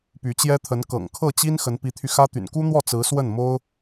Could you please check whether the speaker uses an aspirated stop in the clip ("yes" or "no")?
yes